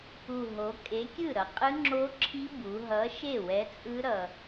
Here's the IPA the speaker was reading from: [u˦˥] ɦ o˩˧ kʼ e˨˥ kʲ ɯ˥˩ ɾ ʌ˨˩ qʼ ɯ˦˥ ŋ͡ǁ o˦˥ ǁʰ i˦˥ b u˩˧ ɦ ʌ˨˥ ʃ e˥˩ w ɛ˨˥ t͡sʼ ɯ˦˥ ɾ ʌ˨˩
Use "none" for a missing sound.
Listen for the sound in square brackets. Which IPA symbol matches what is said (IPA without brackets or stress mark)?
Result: u˨˩